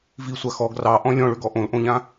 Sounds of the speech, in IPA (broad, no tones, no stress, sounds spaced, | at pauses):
v i sʷ a x ɔ ɡ r ɑ ʔ ɔ̃ lʲ ɔ̃ ɭ ø ɡ ɔ ʔ õ l ʔ õ ʎ ã